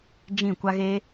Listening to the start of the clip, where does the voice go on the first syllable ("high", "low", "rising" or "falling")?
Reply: falling